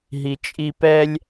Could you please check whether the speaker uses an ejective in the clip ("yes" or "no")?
yes